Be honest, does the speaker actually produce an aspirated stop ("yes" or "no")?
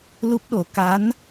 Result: no